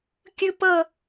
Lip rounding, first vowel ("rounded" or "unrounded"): unrounded